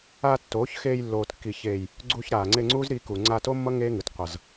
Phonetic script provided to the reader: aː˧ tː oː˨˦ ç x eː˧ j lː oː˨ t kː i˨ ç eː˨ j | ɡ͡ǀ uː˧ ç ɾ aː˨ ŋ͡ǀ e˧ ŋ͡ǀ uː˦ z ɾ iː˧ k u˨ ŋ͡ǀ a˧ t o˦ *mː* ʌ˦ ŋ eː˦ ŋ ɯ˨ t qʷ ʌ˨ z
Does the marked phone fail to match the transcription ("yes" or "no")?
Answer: no